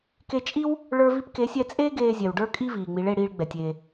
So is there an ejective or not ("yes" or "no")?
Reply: yes